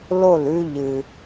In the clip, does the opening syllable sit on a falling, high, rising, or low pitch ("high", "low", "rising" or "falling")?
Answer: falling